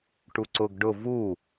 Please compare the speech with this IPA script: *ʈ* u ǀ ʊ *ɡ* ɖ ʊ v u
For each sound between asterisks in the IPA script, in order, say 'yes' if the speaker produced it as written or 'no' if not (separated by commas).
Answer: yes, yes